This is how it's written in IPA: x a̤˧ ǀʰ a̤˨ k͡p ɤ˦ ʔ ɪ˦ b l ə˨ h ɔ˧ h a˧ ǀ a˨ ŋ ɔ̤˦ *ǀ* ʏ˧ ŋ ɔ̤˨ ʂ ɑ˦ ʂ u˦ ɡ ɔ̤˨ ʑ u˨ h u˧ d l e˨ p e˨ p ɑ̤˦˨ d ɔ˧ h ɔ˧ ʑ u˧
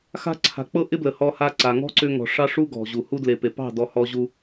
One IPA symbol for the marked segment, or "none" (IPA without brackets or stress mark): ǀ